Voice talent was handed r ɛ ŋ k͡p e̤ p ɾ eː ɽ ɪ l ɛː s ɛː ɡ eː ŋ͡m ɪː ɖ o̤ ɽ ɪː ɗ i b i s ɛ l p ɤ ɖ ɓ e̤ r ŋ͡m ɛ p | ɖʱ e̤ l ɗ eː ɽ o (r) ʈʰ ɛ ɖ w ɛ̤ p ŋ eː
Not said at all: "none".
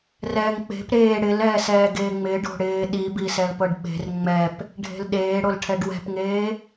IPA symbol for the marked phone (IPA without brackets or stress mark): l